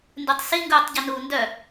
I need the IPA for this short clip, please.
n d ʉ tˤ s i ŋ ɡ uː tˤ ɟ e n uː n d œ

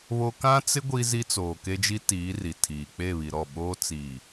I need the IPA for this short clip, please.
β o˦ k ã˦ t͡s ɪ˦ ɡʷ i˦ z i˦ t͡s oː˨ k e˦ d͡ʒ i˦ t iː˨˦ r i˨ tʰ iː˨ k͡p e˦˨ β i˨ ɾ ɔ˦˨ ɓ oː˦ t͡s iː˨

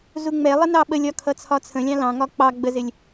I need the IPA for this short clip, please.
z u ŋ͡m ɛ lˠ ɪ n ɑ ɓ ə lʲ ɒ kʰ ʌ t͡sʰ ɒ t͡sʰ ə̃ lʲ ɑ̃ l ɑ̃ ŋ ɒ k͡p ɑ ɡ͡b ə z ɪ lʲ

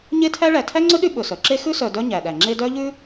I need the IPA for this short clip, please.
ɲ e˦ tʰ æ˦ ɭ æ˨ tʰ æ˥ ŋ͡ǀ ɵ˥ ɗ y˦ ɓ ɵ˩ s œ˩ ǁ e˥ x ʉ˥ s œ˨ d œ˦ ɲ æ˩ ɗ æ˩ ŋ͡ǁ e˦ d œ˥ ʎ ʉ˥

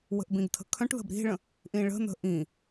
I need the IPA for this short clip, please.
w ə̤ ʔ b ĩ ɡ tʰ ə̤ kʰ œ̃ ʈ ð ə̤ b ɾ i̤ ɭ ə̃ | ʔ ĩ ɭ ə̤ n̪ ə̤ ʔ ĩ

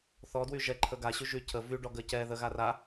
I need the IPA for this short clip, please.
θ ɔ d w y ʒ ɛ ǃʰ ə ɡ a ɕ y ʒ y cʰ ə v y ɖ ɔ ɡ ə c ɛ ð ə ɣ a r a

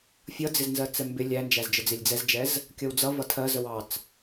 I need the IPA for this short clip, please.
fʲ ʌ d͡z ɪ z n z ɜ t͡s ɛ m b ɪ lʲ æ n d͡ʒ æ z d͡ʒ ə d͡z ɪ lʲ d͡z ɛ z d͡ʒ ɛ z | kʲ ʌ w d͡z ʌ v ʌ tʰ ɜ z ə w ɑ t͡s

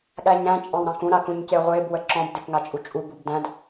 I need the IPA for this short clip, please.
ɠ æ ɲ ɾ æ̃ t͡ʃʼ ɑ̃ w ɾ ɑ̃ k ũ ɾ a k ũ ɲ c e ʁʷ e b w ə ǁ ɔ̃ b d e k ŋ a t͡ʃʼ u t͡ʃʼ u b u b d æ̃ d

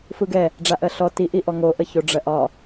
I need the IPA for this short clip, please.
f ɯ ɡ ɛ | ɖ͡ʐ a ʔ ɜ ɬ ɔ t i ʔ i ʔ ɔ ŋ o ʔ ə ç o ɖ͡ʐ ɜ ʔ ɒ

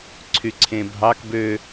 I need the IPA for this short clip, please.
ǀʰ y ǀʰ ẽ bʱ ɑ k b ø

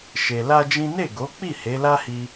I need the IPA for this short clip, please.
ʃ e˧ l a˦ d͡ʒ ĩ˦ n e˦˨ ɡ o˨˦ k͡p i˦˨ h e˨˦ l a˦ h i˧

